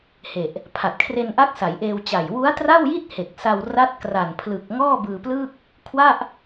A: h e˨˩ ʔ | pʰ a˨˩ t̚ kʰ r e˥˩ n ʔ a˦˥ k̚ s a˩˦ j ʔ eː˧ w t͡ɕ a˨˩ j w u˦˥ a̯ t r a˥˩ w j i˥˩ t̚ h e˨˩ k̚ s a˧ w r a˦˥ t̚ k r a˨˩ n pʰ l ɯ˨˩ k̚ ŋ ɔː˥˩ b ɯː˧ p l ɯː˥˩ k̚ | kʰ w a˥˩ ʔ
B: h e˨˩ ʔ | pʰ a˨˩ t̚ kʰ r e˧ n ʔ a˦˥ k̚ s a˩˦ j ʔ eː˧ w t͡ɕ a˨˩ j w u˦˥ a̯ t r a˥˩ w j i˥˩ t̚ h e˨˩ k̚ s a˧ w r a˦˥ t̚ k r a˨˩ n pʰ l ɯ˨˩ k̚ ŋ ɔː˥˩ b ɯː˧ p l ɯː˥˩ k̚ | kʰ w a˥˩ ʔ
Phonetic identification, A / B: B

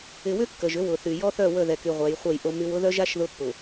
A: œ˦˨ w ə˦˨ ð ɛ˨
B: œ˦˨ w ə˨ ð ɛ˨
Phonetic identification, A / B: A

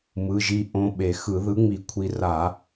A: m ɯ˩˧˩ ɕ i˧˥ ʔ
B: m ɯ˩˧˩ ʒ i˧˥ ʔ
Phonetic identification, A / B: B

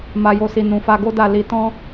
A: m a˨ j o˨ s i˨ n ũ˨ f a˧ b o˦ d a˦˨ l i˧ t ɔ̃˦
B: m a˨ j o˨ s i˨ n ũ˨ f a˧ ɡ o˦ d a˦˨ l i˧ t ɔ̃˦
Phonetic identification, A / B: B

